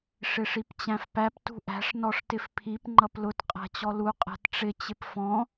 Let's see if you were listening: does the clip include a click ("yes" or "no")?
yes